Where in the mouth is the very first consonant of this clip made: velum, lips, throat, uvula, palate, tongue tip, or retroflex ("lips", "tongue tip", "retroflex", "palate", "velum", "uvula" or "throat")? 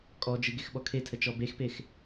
velum